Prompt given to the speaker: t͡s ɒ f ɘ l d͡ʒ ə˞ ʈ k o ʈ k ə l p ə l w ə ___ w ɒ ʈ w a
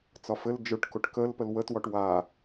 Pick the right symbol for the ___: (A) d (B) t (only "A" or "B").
B